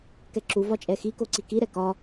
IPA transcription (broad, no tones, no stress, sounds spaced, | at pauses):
k ɛ ǁ u v ɒ t͡ʃʼ ɛ x i k o ǀ i k i ɾ ɛ k ɒ